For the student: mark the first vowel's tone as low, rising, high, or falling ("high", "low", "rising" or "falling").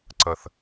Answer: low